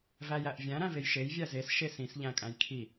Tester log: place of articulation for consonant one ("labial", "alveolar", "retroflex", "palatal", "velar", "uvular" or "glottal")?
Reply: labial